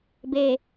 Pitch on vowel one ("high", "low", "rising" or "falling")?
low